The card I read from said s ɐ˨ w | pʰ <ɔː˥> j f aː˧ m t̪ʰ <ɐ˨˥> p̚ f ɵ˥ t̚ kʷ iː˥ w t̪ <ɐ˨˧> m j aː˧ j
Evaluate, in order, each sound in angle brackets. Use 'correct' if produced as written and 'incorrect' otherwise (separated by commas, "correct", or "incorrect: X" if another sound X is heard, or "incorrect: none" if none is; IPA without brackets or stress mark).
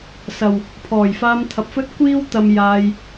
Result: incorrect: ɔː˨˩, correct, incorrect: ɐ˧